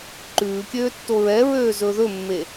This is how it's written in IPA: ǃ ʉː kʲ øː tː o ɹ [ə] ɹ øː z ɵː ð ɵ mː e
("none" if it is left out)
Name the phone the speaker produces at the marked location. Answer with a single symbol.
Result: ɛ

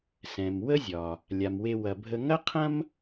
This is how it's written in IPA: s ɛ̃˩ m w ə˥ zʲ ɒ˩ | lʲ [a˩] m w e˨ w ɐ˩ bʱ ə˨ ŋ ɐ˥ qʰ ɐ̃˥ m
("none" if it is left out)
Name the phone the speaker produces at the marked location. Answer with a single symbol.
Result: a˩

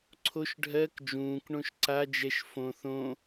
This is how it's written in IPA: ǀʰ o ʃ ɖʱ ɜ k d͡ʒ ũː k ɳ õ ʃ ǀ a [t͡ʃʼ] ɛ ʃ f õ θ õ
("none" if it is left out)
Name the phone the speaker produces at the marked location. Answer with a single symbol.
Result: d͡ʒ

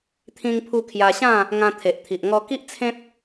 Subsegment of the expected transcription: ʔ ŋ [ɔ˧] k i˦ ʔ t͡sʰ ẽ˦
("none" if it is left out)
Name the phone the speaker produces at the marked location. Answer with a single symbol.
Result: ɔ˧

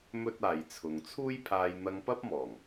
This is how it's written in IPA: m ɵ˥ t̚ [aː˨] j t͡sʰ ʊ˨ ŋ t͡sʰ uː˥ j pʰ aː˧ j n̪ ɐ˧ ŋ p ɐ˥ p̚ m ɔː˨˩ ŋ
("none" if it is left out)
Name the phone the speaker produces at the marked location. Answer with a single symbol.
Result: aː˨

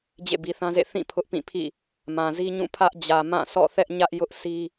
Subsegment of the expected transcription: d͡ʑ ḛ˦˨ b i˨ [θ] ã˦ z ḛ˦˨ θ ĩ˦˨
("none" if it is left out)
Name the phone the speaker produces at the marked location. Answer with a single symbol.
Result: θ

